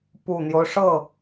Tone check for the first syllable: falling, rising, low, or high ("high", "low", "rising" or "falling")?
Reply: low